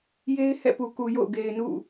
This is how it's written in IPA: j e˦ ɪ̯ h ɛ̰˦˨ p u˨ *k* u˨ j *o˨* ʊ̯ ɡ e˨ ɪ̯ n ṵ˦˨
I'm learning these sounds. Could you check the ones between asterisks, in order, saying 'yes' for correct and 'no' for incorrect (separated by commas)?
yes, no